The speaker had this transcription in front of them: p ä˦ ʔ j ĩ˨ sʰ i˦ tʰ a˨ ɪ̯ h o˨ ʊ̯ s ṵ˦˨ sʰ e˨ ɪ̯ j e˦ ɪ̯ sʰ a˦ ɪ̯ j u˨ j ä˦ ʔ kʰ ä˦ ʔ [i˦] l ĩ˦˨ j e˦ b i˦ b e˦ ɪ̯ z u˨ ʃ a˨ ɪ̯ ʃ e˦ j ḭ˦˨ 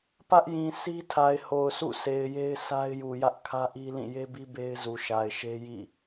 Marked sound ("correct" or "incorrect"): correct